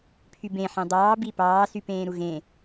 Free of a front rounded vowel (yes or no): no